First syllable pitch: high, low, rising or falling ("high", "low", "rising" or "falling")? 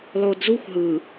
low